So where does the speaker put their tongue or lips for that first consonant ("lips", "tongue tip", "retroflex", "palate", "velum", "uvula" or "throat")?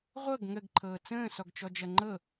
uvula